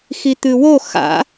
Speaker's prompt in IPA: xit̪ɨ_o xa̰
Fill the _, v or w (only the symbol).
w